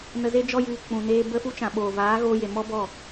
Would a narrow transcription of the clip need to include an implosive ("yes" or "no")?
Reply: yes